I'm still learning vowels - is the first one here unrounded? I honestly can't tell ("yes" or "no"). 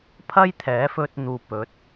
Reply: yes